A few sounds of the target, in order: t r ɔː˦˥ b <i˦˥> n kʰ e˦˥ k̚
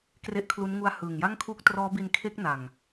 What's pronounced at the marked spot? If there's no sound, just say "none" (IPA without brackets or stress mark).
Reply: i˧